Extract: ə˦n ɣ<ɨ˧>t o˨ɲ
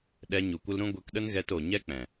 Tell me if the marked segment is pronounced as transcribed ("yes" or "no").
no